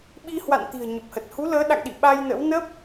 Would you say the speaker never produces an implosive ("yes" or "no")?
no